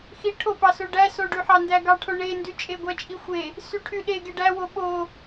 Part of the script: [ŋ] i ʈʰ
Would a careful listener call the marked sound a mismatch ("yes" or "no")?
yes